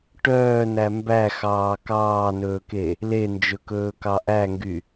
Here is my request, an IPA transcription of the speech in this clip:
ʈ œː n æ m b æ x ɑː k ɑː n ɵː k e | l e n d͡ʒ ɵ k ɵː k ɑ ʔ æ ŋ ɡ y

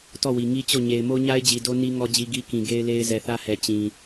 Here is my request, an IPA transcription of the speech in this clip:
t ɔ˦˨ w i˨ ŋ i˦ t͡ɕ o˦˨ ɲ e˨ ɪ̯ m o˦ ɲ a˦ ɪ̯ d͡ʑ i˨ d o˦ n i˦ ŋ ɔ˦ d͡ʑ i˦ ɡ i˦ k ĩ˨ ɡ e˦ ɪ̯ l e˦ ɪ̯ z ɛ˨ θ ä˦ h ɛ˨ t͡ɕ ĩ˨

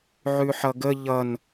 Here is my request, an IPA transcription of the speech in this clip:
ʕ ʉ ħ ʌ ɡ ə ʎ ʌ n

